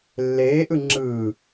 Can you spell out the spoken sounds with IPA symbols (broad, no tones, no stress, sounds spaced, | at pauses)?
lː eː ʔ ɯ ŋ͡ǁ ɯː